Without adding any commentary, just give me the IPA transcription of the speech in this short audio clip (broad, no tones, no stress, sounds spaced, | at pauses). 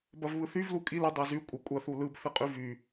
b ɐ v β ɯ θ y v l u kʼ i l ə dˤ a z y kʷʼ ə kʷʼ ɐ θ u l ɯ b θ ɨ qʼ y v y